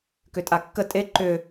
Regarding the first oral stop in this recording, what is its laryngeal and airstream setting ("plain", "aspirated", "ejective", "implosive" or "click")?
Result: plain